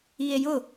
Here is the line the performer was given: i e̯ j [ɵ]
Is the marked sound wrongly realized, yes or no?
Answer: yes